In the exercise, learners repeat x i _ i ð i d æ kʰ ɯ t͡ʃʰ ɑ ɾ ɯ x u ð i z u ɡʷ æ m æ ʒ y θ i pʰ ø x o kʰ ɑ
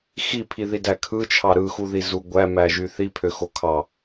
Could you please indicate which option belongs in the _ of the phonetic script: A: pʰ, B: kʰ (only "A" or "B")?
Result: A